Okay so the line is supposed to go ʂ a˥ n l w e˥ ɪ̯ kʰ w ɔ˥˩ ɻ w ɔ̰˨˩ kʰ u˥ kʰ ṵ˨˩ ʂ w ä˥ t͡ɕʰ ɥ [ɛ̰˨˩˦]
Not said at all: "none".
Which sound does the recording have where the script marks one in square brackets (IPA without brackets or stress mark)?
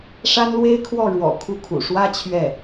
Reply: ɛ˥˩